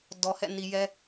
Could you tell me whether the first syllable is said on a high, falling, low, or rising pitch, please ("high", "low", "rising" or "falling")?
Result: low